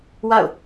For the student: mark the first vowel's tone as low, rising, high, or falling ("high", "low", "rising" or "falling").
falling